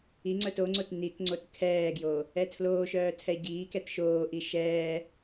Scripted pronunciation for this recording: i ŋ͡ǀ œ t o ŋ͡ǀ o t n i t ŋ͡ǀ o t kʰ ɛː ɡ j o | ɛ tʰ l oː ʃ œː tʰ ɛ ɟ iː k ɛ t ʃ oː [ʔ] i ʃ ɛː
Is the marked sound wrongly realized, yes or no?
no